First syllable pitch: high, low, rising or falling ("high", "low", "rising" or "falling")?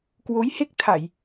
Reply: rising